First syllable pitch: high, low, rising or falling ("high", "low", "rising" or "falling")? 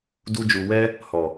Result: high